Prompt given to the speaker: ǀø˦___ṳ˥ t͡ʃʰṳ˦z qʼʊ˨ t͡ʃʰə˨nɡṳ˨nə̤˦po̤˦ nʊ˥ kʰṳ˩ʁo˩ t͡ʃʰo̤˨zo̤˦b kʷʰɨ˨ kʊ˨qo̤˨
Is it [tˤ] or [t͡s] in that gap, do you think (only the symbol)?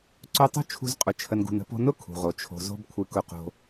tˤ